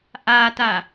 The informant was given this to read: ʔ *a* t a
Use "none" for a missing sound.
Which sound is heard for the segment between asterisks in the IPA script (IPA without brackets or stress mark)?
a